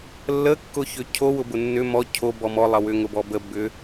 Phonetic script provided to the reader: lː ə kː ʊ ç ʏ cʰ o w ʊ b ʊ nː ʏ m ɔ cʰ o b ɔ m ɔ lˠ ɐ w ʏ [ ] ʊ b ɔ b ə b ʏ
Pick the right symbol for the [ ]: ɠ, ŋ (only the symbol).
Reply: ŋ